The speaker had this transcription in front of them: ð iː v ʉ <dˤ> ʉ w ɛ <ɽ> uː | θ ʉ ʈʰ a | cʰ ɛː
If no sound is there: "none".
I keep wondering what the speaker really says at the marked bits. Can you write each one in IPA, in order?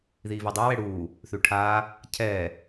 dˤ, ɽ

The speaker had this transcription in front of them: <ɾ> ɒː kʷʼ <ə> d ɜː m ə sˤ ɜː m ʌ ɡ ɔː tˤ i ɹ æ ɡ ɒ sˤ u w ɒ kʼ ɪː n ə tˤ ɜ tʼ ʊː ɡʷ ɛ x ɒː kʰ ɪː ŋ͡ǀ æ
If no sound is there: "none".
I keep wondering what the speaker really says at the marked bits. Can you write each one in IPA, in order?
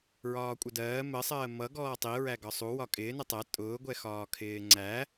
ɹ, ə

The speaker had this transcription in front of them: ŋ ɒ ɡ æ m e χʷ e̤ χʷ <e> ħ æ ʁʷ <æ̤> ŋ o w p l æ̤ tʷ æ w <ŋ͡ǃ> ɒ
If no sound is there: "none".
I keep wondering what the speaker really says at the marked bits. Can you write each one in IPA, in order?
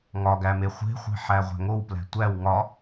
e̤, æ̤, ŋ

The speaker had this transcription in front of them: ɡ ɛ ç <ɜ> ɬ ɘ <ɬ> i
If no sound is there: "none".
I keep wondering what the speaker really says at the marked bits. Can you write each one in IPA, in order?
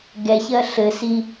ɜ, s

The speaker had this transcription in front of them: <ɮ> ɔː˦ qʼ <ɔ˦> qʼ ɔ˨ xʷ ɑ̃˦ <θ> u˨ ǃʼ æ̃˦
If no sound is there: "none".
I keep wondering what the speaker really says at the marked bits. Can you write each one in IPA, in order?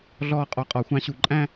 ɮ, ɔ˨, ɕ

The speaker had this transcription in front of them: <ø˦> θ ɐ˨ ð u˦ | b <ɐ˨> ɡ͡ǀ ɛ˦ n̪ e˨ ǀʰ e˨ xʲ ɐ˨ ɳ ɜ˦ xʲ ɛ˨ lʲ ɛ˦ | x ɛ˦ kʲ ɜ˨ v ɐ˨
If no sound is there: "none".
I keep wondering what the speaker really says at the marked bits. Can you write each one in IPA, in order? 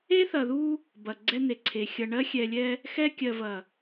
e˦, ɐ˨

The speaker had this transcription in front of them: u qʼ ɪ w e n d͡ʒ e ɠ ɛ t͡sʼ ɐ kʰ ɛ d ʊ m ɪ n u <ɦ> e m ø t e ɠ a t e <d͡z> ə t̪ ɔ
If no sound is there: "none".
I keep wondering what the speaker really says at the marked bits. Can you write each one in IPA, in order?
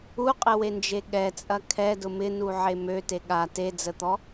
ʕ, d͡z

